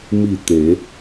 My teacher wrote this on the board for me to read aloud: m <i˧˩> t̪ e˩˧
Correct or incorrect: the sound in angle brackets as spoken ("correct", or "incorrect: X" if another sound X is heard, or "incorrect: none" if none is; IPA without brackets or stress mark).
correct